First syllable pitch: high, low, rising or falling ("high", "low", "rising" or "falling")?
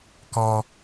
high